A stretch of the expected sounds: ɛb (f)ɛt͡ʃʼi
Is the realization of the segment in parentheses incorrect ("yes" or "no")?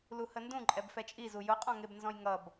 no